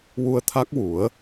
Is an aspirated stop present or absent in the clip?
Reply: present